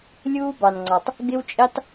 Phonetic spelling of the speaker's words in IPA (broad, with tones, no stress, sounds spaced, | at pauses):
lʲ uː˦ b ɑ˨ n ŋ͡ǀ ɑ˨ tˤ | ɡ ɪ˦ w t͡ʃʼ i˦ tˤ